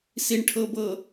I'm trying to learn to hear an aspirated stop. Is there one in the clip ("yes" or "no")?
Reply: yes